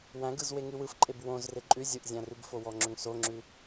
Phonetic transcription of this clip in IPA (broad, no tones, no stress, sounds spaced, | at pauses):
w æ̃ ɡ ɯ z w e ŋ ʉ w ɯ f ǃʼ e b w õ z r e ǃʼ ʉ zʲ ɯ ʔ zʲ æ̃ r ʉ b f o w ɔ ŋ͡ǁ ʏ ŋ s o ŋ͡ǁ ʉ